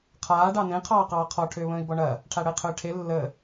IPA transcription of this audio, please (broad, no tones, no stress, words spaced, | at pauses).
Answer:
qʰaː ɖɑnẽ qʰɑːqɑːqʰɔ ʈʰʏːβə̃ːi̯bɔɳɐ | ʈʰaɽəi̯qʰʏːʈʰe lːə